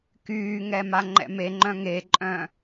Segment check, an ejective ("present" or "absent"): present